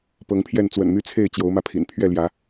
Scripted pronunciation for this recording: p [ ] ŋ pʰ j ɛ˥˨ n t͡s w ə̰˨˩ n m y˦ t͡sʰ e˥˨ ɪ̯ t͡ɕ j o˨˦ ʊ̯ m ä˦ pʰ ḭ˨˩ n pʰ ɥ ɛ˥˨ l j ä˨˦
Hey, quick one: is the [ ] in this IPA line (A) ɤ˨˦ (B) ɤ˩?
A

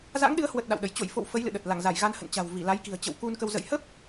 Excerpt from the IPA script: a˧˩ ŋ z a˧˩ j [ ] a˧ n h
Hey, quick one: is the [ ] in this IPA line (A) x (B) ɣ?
B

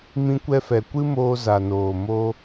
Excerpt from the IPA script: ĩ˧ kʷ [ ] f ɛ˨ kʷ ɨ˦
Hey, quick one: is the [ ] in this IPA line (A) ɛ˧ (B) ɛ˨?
A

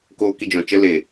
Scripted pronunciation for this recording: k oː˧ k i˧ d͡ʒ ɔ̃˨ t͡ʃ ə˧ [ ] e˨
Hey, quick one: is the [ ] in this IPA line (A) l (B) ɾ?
A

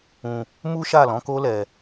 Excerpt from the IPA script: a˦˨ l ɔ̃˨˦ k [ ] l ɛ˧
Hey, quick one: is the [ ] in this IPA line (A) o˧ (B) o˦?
B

